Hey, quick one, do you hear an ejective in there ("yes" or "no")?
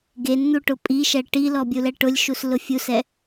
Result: yes